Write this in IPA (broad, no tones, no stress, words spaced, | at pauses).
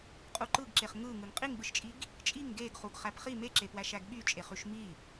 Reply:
qʼuǃɯɡǁeχ ŋɯ ŋɯŋqʼiŋɓɯʃt͡ʃʼiɡ | t͡ʃʼiŋ ɡeɡχuɡ χæpχi meǁepwæ ʃæɡɓyt͡ʃʼeχyʃ mi